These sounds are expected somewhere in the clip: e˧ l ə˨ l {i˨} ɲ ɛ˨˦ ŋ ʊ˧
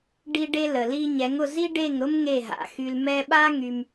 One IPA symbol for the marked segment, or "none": i˧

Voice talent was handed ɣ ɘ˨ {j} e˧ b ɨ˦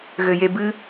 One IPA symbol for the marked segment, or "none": j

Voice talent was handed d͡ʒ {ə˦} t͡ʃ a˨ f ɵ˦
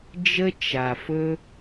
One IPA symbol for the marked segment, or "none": ə˦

